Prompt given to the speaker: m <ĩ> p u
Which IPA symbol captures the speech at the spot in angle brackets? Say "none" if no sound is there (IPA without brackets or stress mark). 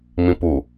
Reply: ĩ